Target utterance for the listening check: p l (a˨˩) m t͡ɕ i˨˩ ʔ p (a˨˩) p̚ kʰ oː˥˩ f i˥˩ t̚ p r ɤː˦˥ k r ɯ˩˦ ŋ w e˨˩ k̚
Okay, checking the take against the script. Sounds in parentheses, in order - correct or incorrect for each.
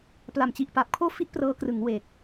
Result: correct, correct

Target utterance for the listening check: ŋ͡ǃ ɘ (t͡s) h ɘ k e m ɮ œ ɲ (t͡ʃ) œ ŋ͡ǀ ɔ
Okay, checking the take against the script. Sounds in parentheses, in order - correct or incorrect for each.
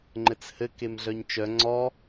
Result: correct, correct

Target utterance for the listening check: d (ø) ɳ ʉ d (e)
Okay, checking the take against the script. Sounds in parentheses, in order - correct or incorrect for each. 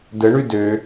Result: incorrect, incorrect

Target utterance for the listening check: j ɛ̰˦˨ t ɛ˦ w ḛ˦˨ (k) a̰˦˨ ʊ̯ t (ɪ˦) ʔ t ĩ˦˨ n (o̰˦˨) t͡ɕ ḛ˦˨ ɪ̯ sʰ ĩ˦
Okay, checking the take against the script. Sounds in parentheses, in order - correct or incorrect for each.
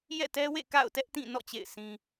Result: correct, incorrect, incorrect

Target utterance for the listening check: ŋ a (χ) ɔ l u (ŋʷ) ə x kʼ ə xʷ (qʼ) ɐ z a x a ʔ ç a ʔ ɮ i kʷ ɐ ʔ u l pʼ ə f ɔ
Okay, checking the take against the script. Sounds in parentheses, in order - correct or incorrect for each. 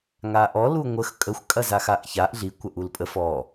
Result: incorrect, correct, incorrect

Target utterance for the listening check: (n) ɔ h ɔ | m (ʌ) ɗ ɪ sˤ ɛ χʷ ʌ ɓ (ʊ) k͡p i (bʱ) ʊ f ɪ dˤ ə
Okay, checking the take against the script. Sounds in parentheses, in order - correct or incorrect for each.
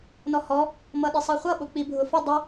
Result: correct, correct, correct, correct

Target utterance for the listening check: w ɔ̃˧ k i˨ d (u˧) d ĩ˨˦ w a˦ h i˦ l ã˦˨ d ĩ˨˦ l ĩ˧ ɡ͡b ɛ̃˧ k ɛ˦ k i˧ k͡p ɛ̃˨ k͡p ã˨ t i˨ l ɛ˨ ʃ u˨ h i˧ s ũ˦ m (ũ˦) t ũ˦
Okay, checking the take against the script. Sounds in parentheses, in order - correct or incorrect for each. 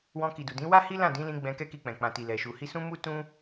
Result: incorrect, incorrect

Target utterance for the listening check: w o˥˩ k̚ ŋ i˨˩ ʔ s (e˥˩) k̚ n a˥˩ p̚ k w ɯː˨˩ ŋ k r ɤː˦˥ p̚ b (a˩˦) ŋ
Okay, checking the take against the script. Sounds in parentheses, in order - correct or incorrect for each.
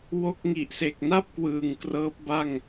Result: incorrect, incorrect

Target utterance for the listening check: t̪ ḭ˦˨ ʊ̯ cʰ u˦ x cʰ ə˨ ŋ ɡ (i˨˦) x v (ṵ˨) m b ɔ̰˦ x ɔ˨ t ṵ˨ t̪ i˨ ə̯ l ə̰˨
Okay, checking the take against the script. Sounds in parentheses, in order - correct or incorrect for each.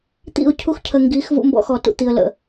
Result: correct, incorrect

